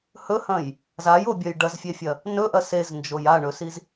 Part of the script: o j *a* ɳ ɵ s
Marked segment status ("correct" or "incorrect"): correct